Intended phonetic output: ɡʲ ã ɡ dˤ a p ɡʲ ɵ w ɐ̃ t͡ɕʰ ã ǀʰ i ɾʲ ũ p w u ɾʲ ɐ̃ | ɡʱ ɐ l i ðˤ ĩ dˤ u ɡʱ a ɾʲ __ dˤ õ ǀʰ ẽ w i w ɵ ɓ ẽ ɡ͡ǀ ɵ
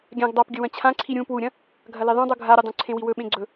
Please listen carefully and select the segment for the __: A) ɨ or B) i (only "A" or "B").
A